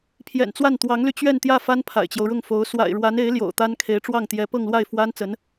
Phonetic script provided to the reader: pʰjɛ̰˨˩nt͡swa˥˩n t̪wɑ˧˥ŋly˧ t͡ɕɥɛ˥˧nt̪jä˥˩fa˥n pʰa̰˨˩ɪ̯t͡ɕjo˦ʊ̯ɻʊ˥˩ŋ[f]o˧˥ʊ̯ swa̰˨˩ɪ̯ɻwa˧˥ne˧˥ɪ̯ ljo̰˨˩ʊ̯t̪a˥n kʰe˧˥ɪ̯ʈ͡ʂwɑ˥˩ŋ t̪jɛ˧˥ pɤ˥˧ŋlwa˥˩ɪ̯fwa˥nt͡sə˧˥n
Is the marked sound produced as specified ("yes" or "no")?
yes